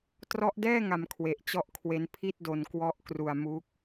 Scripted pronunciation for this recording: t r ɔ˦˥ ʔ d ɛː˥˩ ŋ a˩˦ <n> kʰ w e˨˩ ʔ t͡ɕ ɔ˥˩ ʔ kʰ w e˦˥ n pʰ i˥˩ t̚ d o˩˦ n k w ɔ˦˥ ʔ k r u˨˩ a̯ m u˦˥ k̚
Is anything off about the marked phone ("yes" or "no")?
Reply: yes